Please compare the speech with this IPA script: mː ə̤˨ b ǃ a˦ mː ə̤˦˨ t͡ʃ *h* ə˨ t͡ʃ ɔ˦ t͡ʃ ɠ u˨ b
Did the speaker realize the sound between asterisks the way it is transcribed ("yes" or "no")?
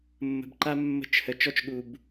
yes